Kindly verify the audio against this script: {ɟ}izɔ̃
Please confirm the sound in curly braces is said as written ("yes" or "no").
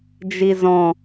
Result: no